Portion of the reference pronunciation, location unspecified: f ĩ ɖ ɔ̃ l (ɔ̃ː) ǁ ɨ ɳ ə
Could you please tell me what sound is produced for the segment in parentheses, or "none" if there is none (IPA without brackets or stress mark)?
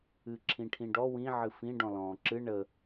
ɔ̃ː